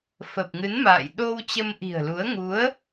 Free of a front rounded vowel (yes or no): yes